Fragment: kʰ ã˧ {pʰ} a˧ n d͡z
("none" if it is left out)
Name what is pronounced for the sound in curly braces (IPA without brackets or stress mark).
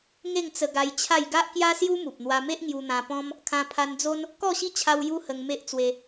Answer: pʰ